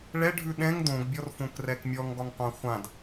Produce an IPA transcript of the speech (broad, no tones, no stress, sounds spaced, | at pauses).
ɭ ɛ ɖʱ ʉ ɗ ɛ̃ ŋ d õ ɡ bʲ ɔ r f õ k r ɛ k mʲ ɔ ŋ ɡ ɒ ŋ qʷ ã χʷ ã d